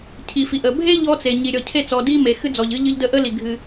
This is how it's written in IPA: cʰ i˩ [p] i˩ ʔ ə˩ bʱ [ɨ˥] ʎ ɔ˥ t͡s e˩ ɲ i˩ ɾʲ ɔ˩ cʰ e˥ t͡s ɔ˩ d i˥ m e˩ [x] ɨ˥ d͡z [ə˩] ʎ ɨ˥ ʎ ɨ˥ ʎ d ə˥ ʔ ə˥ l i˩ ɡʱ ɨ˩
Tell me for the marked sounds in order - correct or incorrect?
incorrect: f, incorrect: e˥, correct, incorrect: ɔ˩

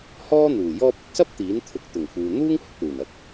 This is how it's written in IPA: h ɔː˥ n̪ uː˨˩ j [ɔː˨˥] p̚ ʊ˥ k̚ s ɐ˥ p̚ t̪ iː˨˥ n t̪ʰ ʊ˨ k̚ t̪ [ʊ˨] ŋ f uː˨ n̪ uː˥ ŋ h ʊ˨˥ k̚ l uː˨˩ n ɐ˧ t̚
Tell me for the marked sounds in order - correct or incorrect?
incorrect: ɔː˧, incorrect: ʊ˨˩

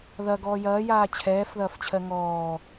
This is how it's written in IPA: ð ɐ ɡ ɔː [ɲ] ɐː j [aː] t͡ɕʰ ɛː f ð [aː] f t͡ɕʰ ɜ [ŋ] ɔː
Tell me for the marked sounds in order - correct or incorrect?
incorrect: j, correct, incorrect: ɐː, correct

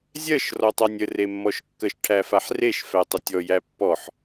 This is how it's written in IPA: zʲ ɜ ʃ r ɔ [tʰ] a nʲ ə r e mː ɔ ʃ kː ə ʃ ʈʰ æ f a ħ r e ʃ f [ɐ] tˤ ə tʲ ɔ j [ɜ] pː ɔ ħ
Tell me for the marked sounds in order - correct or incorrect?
incorrect: tˤ, incorrect: æ, incorrect: æ

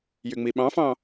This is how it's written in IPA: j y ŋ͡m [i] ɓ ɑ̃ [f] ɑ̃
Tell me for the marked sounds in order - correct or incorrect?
correct, correct

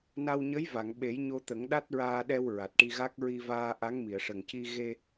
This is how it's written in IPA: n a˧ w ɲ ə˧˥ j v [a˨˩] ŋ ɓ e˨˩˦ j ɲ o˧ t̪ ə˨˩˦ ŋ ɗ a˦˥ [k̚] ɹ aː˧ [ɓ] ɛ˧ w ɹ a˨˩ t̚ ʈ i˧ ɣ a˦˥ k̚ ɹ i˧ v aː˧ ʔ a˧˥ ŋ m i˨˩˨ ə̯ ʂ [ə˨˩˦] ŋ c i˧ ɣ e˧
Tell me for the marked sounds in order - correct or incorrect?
incorrect: a˨˩˨, incorrect: t̚, incorrect: ɗ, incorrect: ə˨˩

